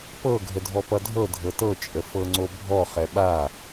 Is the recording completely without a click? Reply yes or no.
no